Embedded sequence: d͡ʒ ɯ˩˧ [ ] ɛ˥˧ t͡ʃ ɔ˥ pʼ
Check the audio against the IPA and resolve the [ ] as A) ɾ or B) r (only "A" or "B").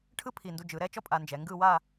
A